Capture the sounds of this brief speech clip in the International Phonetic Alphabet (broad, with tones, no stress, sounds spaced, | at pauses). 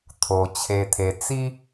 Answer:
t̪ʰ o˩ t͡ɕʰ e˩ t̪ʰ e˩ t͡s i˧